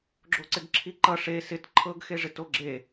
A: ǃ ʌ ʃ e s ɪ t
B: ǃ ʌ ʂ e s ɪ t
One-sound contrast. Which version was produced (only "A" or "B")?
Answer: B